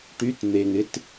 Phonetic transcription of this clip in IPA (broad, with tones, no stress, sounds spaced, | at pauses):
ʈ y˧˥˧ t n̪ e˨˩ ŋ ɪ˧˥˧ t